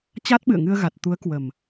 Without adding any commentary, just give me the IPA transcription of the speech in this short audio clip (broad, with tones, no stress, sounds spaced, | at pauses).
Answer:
t͡ɕ a˦˥ t̚ ɓ ɨ̰˧˨ ə̯ ŋ ɨ˧ ə̯ ɣ a˨˩ t̚ t̪ u˨˦ ə̯ k w ə˨˩ m